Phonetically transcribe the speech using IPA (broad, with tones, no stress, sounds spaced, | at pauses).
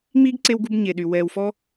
ŋ͡m iː˦ ɡ ǀ e˧ w ɡ u˧ b ɲ e˨ ɗ y˨ w ɛː˨ w f ɔ˦